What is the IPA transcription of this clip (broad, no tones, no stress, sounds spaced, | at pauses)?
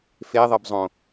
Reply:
f e ðˤ ɘ b zˤ õ